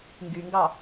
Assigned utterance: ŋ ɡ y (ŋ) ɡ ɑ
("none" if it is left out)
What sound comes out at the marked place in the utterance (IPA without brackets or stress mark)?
ŋ